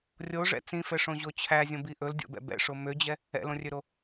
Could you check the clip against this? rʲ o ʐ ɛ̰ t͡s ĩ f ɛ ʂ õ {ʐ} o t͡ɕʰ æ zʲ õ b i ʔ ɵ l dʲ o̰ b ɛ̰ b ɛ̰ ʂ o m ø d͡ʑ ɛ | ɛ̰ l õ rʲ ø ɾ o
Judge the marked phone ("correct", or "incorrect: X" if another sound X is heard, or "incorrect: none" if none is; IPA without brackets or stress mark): incorrect: ʑ